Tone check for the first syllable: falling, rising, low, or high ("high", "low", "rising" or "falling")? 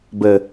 low